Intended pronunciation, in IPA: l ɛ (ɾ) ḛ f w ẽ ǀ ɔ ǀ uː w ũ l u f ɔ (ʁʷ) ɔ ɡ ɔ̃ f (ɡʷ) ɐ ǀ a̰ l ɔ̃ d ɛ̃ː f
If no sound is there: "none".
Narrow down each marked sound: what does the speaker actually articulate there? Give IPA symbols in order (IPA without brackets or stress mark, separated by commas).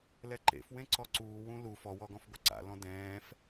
ǃ, w, ɡʷ